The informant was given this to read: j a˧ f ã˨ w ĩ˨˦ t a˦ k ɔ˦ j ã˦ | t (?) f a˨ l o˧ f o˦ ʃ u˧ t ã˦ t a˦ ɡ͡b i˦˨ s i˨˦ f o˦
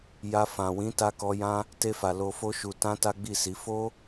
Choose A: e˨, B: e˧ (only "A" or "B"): B